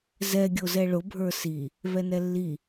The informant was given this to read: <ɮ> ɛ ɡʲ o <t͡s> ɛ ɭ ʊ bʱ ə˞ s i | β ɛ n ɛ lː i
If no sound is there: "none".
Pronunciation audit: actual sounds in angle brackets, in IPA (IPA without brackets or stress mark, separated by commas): z, z